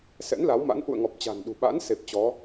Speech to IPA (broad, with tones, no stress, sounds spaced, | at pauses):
s ɛ̰˧˥ n l a˨˦ w m a̰˧˥ n ʔ ṵ˧˨ ə̯ ŋ ɔ˨˩ p̚ t͡ɕ a̤˨˩ n ɗ ṳ˨˩ ɓ a̰ː˧˥ n s e˨˩ p̚ t͡ɕ ɔ˨˦